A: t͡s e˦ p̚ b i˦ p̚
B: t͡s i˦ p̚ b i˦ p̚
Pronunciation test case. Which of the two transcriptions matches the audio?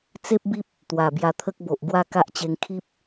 A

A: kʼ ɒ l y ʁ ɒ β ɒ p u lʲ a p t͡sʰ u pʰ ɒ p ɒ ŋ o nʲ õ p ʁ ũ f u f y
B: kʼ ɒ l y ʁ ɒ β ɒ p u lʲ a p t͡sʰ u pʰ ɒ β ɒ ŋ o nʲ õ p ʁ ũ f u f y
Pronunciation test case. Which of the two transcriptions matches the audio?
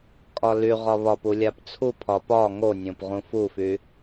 A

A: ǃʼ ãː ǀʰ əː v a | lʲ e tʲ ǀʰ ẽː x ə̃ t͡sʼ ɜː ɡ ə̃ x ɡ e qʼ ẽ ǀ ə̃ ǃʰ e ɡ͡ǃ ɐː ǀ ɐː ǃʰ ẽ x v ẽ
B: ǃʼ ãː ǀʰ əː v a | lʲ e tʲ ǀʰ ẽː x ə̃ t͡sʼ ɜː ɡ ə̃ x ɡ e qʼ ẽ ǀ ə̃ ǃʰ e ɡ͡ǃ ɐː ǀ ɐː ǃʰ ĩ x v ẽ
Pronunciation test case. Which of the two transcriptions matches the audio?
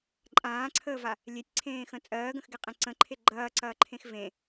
A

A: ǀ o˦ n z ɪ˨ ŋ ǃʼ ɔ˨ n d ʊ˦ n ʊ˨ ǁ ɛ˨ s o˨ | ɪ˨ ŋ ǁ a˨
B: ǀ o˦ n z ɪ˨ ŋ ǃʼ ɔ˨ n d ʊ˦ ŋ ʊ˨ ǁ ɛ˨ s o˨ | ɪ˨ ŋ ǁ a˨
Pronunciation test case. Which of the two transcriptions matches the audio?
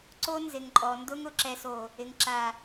B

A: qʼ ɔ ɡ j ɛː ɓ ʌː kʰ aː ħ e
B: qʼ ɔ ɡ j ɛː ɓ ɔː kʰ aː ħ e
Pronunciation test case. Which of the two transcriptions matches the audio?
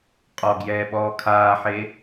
B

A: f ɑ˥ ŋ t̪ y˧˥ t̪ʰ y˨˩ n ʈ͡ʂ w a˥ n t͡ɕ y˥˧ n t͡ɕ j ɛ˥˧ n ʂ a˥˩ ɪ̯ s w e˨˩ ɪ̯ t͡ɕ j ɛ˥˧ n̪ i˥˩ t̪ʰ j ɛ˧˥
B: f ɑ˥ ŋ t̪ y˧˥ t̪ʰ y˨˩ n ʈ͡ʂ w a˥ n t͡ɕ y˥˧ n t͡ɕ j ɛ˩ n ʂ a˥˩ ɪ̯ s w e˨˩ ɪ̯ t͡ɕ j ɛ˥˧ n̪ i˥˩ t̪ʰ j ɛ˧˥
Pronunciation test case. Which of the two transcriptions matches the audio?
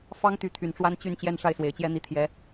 A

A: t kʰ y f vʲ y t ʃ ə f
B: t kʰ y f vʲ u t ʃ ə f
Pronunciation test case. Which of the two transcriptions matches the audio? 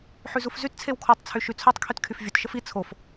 B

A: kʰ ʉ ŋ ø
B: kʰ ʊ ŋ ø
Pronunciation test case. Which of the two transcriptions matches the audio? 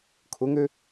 B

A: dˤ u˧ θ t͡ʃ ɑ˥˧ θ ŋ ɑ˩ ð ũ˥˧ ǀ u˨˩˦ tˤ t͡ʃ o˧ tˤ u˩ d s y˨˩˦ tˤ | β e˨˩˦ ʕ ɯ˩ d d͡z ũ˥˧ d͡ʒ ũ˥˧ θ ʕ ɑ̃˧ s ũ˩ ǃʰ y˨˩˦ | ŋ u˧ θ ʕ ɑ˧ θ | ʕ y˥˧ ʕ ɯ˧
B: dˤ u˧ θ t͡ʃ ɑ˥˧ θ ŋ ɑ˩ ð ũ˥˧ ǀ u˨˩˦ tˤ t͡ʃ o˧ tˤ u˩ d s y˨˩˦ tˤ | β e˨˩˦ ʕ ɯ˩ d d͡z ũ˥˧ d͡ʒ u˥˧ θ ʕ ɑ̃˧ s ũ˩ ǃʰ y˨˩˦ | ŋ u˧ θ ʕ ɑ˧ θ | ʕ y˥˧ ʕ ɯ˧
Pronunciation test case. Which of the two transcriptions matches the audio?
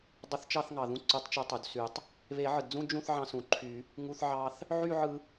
A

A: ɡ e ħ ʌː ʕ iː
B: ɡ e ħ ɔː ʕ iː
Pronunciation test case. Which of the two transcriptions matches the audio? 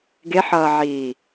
A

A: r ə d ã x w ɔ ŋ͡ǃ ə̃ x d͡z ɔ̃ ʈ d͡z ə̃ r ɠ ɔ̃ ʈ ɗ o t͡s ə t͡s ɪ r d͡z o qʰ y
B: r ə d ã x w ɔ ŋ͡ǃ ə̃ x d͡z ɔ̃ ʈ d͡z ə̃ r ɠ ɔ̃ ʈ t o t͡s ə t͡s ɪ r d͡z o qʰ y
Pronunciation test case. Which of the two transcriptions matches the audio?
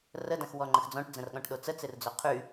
A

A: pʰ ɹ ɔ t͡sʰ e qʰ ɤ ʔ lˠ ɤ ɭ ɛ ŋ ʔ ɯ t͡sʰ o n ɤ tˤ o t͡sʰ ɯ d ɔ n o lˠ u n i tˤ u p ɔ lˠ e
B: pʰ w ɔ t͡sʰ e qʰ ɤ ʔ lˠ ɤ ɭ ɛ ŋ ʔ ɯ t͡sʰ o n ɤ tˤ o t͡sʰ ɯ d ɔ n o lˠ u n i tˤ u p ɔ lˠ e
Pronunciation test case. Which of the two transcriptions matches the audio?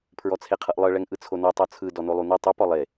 A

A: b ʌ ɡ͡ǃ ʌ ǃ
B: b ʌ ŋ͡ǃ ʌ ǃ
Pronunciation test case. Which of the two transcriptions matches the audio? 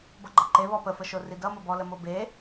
A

